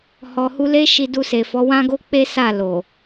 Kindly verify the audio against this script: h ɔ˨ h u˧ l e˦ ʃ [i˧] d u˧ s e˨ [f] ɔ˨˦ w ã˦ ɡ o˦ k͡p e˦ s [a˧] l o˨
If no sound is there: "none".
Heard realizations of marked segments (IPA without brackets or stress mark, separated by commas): i˧, f, a˦˨